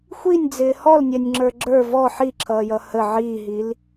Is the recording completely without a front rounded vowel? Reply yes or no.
yes